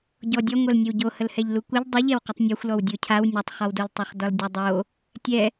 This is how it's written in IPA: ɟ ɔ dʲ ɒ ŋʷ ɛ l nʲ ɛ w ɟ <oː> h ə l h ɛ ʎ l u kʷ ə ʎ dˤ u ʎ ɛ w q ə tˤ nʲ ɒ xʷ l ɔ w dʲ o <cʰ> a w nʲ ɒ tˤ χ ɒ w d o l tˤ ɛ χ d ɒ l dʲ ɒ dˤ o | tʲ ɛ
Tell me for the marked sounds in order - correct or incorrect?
incorrect, correct

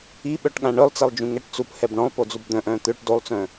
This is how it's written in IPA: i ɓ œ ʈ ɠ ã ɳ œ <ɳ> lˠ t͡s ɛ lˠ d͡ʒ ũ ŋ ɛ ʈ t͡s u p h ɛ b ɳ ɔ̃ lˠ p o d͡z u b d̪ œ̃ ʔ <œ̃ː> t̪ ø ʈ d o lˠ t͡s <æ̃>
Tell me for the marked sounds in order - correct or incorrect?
incorrect, correct, incorrect

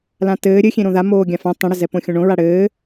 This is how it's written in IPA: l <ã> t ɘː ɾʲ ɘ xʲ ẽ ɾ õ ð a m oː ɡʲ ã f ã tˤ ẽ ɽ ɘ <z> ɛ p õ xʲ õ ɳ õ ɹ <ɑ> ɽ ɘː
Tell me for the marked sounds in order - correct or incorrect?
correct, correct, incorrect

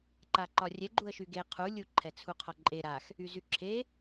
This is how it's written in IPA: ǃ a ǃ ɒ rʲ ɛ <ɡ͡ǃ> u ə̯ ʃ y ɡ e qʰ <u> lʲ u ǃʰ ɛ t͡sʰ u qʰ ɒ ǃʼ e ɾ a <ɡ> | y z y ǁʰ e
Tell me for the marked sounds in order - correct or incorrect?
correct, correct, incorrect

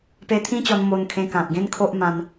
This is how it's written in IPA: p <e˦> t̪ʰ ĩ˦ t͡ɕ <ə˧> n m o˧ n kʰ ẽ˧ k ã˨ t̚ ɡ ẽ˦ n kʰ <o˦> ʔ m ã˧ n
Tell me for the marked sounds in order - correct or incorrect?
incorrect, incorrect, correct

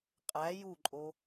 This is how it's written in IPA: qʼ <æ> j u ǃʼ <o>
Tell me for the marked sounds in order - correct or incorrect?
correct, correct

